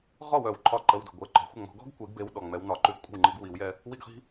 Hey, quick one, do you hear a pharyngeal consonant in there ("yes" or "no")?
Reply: no